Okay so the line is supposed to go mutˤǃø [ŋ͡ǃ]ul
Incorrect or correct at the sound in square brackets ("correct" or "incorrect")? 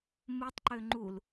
correct